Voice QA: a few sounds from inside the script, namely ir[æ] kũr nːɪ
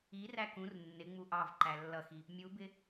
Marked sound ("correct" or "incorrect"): correct